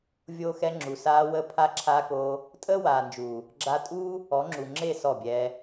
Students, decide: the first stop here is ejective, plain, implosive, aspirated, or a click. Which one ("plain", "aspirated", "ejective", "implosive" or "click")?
click